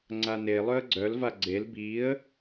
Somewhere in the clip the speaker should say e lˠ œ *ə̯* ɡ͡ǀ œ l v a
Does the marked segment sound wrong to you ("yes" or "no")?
no